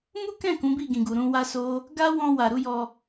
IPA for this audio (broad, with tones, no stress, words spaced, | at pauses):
mu˦kɛ̃˦˨ kũ˨˦bi˦˨ɡĩ˨ɡu˨ ɾũ˧wa˦ so˦ | ɡa˦wɔ̃˧ wa˨ɾu˨˦jɔ˧